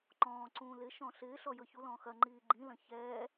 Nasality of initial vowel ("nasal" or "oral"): nasal